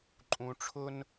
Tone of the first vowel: low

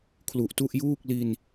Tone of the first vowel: low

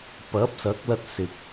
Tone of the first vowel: rising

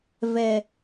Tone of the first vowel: low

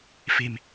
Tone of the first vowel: low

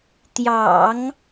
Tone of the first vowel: low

